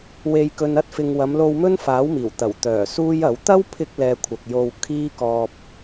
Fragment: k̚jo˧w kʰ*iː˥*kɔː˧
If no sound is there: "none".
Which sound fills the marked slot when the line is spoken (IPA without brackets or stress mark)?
iː˥